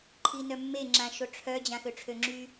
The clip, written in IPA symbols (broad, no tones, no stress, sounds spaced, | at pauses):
ǃʰ i n œ mː e ŋ͡ǁ ã ʃ o ʈ͡ʂʰ œ d͡ʑ ã x ø ʈ͡ʂʰ ø ŋ͡ǁ y